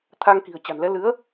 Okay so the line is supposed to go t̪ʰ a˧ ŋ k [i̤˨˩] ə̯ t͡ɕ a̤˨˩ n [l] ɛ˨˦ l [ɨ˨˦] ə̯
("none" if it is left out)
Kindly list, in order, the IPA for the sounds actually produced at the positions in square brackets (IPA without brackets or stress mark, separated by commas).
i̤˨˩, l, ɨ˨˦